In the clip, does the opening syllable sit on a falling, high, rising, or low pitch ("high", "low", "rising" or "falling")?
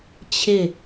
falling